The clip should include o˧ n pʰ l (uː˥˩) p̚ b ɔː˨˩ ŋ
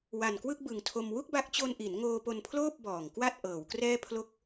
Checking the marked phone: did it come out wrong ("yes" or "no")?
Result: yes